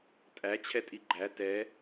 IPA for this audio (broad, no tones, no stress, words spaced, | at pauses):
tʼæ t͡ɕʰɛtʼiɡ͡ǃæ tɛ